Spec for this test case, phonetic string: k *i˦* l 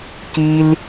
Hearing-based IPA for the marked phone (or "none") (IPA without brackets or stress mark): i˦